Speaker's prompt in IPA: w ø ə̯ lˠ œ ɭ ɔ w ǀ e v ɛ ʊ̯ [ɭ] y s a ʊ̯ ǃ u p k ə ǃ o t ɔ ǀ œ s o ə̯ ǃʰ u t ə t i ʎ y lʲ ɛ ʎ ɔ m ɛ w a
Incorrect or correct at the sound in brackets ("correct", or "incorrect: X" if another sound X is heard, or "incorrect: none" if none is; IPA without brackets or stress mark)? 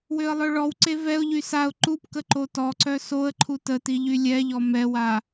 incorrect: ʎ